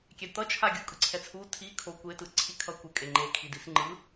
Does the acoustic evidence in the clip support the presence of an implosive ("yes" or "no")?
no